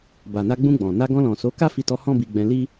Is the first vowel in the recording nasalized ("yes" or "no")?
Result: no